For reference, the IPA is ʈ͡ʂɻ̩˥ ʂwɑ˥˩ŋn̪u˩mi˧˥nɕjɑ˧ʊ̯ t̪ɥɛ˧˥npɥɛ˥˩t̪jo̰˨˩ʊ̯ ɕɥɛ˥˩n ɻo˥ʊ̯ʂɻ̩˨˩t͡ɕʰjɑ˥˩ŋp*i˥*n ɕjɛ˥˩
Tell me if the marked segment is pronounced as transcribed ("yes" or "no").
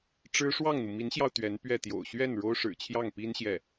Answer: yes